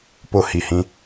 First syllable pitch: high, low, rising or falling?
high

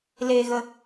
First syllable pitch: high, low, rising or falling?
low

